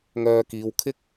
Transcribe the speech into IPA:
ŋœː˧kiː˨˧w kʰɪ˥k̚

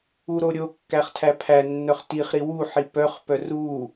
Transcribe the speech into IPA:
uɾoɾʲokːæχ tʰæpʰænːœχ tiχɾi wuħi pœχpœ ru

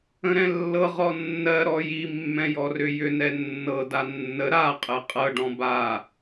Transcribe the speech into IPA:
ə̃ɾɛ̃lːɤ ʁɔnːɜ ɾɔji mːɛ̃jɔrʏjʏ nɛnːɤ danːə ɾa qʼɛqʼɤ ɖɔ̃ba

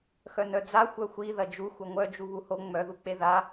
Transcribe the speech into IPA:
xœnœd͡za xʷœxʷi ðɐd͡ʒu xʷœŋʷœ d͡ʒuβuho ŋ͡mœðuk͡pe ða

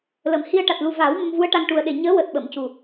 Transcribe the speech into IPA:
lə˨˩mhi˧ə̯ ʈa˨˩t̚lu˨˩ vaː˨˩˦w mə˧mvu˧˥ə̯ʈa˧ŋ ʈu˨˩ə̯ ɗe˨˩ɲəː˧˥ wəː˨˩t̚ɓə˨˩˨mcu˨˩

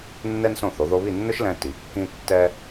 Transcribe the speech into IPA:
nːɛ˥nsõ˥˩θo˩˥ ðo˧βi˥˩nːʊ˥ʃlɛ̃˧ ti˩˥kːĩ˥tːɛ˥

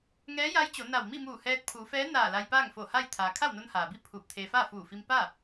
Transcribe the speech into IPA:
ŋɛː˧˥ja˧˥jt͡ɕo˩˧ na˧˩w mi˥˨muː˧˩hɛː˧t̚ pʰuː˩˧fɛː˧˥ naː˧˩ la˧jpaː˥˨ŋfo˧˩ha˥˨j t̪ʰaː˩ kʰa˥˨wno˧nhaː˩bi˥˨ pʰuː˧˩p̚t̪ʰeː˧ faː˥˨fuː˧˩fi˧m pa˥˨

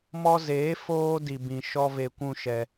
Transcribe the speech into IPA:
mɔ˦ zeː˨˦ foː˦di˧bĩ˧ ʃɔ˦ve˧kʷũ˦ʃɛ˧

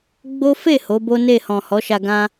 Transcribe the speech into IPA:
ɡ͡bo˦ fe˦˨ ho˨˦bo˦ ne˦˨hɔ̃˨ hɔ˨˦ʃa˧ɡã˦

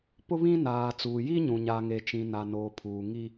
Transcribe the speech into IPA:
pʊ˦βĩ˦ naː˨t͡suː˨ji˦ɲũ˨ ɲa˨ŋe˨t͡ʃĩ˨ na˨no˨pʰuː˨ ŋi˦

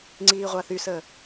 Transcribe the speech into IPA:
ŋ͡ǀiːʁʷaθysəː

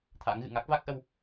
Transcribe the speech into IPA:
t̪ʰa̰˧˥ŋɣɨ̰˧˨ ŋa˦˥k̚va˦˥k̚ʔə˧w

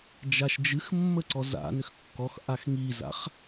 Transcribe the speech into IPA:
d͡ʒaʃd͡ʒɨx mːəǀɔza̰ nʏxkːɔxʔax ŋiza̰χ

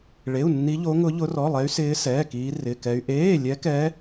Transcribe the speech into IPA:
ɭe˧˥˧u̯nːi˦˥ ʎo˦˥ŋʊ˦˥ʎʊ˦˥ rɔ˧˥˧lˠɛ˦˥y̯sɪː˦˥ sɛː˧˥˧kiː˦˥ rɪ˧˥˧kɛ˦˥y̯ ʔeː˧˥˧lʲɛ˦˥kɛ˦˥

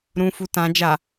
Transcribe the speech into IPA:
ɾũfu tã d͡ʒa

